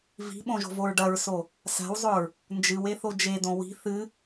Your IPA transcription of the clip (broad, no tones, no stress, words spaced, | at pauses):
vi̤ɓõʒo̤voɹ ɖɐɹso | sa̤wzˤɵɹ | nd͡ʒɨweθo d͡ʒed̪õ wi̤ θɨ